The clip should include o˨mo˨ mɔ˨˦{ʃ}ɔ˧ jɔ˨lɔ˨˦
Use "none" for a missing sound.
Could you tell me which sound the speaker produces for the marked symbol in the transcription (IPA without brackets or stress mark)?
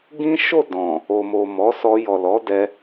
s